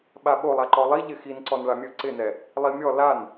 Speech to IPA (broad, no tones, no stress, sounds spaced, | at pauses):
ɓ a ɓ o lˠ a ǃ ɔ lˠ i ʎ ɪ x i n ǀ ɔ n ɭ a mʲ ɵ ǀ ɪ n ɛ | lˠ i mʲ ɔ l a n